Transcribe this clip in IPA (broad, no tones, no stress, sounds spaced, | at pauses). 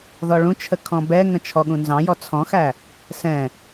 ð ɔ ɭ ũ t͡ʃʰ ə kʰ ɔ̃ b ɛ ŋ ə̃ t͡ʃʰ ɔ ɠ ũ n z ɑ̃ j ɔ t͡sʰ ɔ̃ x æ | s ɛ̃